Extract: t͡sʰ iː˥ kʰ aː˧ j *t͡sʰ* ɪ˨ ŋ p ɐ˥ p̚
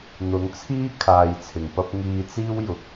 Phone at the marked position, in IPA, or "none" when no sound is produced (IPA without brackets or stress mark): t͡sʰ